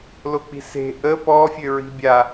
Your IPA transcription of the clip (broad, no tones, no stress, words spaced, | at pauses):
lok͡pi̤se̤ ʔə pɔ fʲøɹi̤bʲa